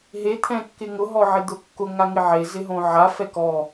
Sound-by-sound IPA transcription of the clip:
ɦe t̪ʰɛ̃kːɪŋʊ ɦɔʕɪd̪ʊkːʊ ŋaŋɪʕe zɪɦõʕa fɛkɔ

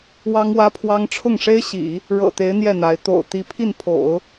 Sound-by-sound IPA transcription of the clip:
wɑ˥ŋwä˥pʰwɑ˥ŋ ʈ͡ʂʰʊ˥˩ŋʂe˥ɪ̯ɕḭ˨˩˦ | ɻɤ̰˨˩t̪e˧˥ɪ̯ n̪jɛ˥˩n̪a˧˥ɪ̯ t̪o̰˨˩ʊ̯ t̪i˧˥pʰi˥˩npʰo̰˨˩˦ʊ̯

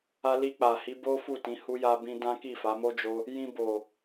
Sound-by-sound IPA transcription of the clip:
a˧li˧k͡pa˨hi˨˦ bo˦fu˦˨tĩ˨˦ hu˦ja˦bĩ˦ dã˦ ki˦˨fa˨˦mo˦ d͡ʒo˦ | jĩ˧bo˨

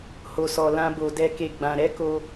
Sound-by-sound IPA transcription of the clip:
ho˧sɔ˧ lã˦bo˧ dɛ˦ke˦˨ɡ͡bã˧ ɾɛ˦ko˧

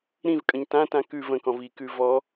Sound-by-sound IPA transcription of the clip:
ɾĩvkʼə̃ɲ tãtã kʉ və̃kɔ̃v ikʉ vɔ

